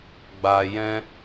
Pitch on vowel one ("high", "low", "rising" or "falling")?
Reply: low